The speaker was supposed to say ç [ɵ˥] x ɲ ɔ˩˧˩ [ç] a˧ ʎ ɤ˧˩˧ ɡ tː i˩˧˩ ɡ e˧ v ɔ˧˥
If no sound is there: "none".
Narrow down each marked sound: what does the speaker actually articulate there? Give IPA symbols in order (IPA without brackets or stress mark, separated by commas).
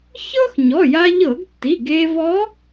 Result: ɤ˥, j